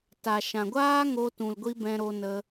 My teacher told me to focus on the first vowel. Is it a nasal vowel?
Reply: no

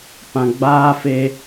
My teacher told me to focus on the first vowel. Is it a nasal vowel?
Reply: yes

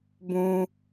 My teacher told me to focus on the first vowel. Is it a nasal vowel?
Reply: yes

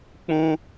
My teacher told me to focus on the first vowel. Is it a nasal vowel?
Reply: yes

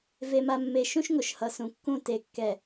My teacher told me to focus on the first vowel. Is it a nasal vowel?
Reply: no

